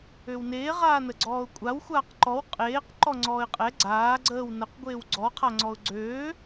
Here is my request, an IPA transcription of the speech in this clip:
øwneː ʁaːnəɡ͡ǀɔːʊ̯kʷʼaw xʷaːqǃɔw qʼeːq ǃɔŋ͡ǀɔːɪ̯qʼɛ ɡ͡ǀaː ɡ͡ǀəːw nəq ɡʷeːwɡ͡ǀɔ qʰaŋ͡ǀɔʊ̯ɡ͡ǀøː

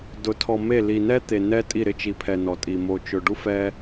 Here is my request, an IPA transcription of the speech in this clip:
dʊ˨tʰɔ˨me˦˨ li˨nɛ˦t̪e˨ nɛ˦ tʼi˦˨ɾɪ˦ t͡ʃi˨pʰɛ˨ nɔ˨tʼi˨ mo˨t͡ʃʊ˨ ɖu˦fɛ˦

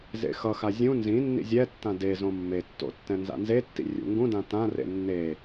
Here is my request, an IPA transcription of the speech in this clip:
zḛxʌxa zʲũ nzĩnːḭ zʲɛtːã dezõ mːetːo̰ tːɛ̃nza̰nzetːḭ rʲṵŋɡũdã tãrḛ nːe

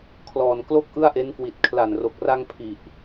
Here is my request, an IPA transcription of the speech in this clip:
kʰlɔː˨˩nklo˥˩k̚ ʔɯ˥˩a̯ʔe˦˥nkwi˨˩t̚ kʰla˨˩nro˨˩k̚ra˧ŋ pʰi˨˩ʔ

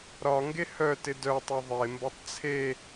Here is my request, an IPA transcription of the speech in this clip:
ɾɒŋɡe hœtɪ dœtˤe ðˤembɒtˤ t͡sʰe

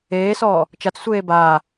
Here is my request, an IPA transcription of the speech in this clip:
eːsɔː | t͡ʃat͡ssʷeː baː

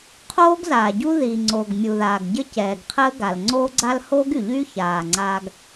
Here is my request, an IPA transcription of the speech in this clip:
qʰoː˥ɡzaː˩ɟu˥ ði˩ŋ͡ǀo˩ɡ mʲu˩ðaː˩ɡ ɟə˥cɛː˩ɡqʰəː˥ ɡa˩lŋ͡ǀoː˥ ɡ͡ǀa˥l hoː˥ɡy˩ʎyː˥ çaː˩ ŋ͡ǀaː˥ɡ

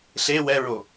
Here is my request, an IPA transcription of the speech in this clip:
ɬe wɛɹo

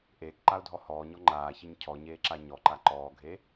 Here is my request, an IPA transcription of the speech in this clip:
ʔeːkǃaʊ̯dʱɔ hɔːɲɔ ŋ͡ǃaːçɘɲ cʰɔɲeːǁa ɲɔǃa ǃɔːɡʱe

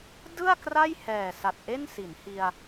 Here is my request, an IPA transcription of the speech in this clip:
dɯ˥˩a̯ kra˥˩jhɛː˨˩sa˨˩t̚ ʔe˥˩nsi˩˦n hi˧a̯

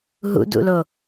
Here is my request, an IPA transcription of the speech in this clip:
ɦṵdṵlo

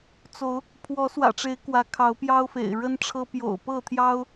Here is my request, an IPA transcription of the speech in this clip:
t͡so˨˦ʊ̯ | pʰwɔ˨˦swä̰˨˩ʈ͡ʂe˨˦ɪ̯ kwä˨˦kʰɑ˨˦ʊ̯pjɑ˦ʊ̯fḛ˨˩ɪ̯ ɻə˦nʈ͡ʂʰɤ˦ pjo̰˨˩ʊ̯pɤ˥˨t̪ʰjɑ˦ʊ̯

